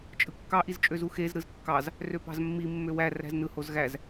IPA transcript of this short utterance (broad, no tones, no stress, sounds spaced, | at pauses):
t͡ʃʼ ɯ kː ɑ ʔ i z t͡ʃʼ ø z u x e z ɾ ɯ z kː ɑ z | r ø p ɑ̤ z mː i mː ø w æ r æ̤ z n ɯ h o z ɣ æ z